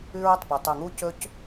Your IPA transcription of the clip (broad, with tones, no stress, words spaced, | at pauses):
ʉ˧ɹɵ˩tˤpu˩ tˤʉ˩ŋu˧cɵ˧c